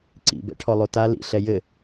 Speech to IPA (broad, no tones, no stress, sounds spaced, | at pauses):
ǀ ḭ b ɛ̰ ʈʰ ɔ lˠ o t a l ḭ ɬ ɛ j ɘ